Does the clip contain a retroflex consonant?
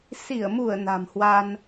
no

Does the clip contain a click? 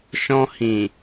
no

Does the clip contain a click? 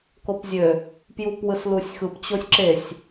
yes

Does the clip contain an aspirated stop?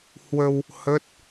no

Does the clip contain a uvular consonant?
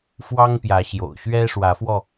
no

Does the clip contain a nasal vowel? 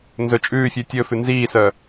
no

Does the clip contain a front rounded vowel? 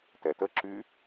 yes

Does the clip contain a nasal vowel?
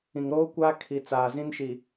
yes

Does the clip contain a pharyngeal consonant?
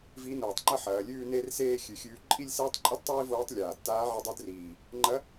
yes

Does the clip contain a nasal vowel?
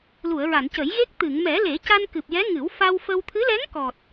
no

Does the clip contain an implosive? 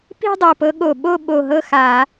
yes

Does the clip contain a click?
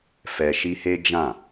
no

